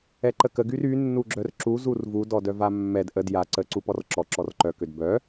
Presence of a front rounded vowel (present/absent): present